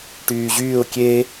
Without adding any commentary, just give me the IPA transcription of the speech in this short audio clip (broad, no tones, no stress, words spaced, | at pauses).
ʈyːʑyːʊ̯ kʲe